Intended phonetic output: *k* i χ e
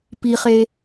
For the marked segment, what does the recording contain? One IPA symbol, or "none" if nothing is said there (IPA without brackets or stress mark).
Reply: p